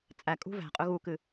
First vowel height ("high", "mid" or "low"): low